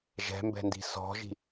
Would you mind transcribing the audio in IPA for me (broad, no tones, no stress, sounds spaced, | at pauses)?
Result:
ʒ ɛ̤ m b ɛ̤ n d i̤ s ɔ̤ ʒ i̤